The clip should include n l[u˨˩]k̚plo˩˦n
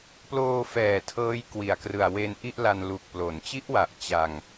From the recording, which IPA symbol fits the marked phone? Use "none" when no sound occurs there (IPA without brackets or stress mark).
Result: u˨˩